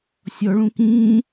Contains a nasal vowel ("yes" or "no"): yes